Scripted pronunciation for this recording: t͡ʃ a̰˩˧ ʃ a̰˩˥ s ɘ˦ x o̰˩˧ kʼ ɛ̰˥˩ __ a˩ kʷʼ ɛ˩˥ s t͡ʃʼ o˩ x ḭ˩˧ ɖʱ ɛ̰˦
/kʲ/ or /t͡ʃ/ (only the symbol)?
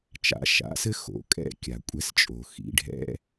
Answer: kʲ